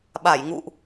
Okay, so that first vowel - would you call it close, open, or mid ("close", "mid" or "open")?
open